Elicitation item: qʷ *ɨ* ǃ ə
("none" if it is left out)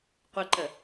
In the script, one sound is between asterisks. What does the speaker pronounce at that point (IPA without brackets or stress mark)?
ɪ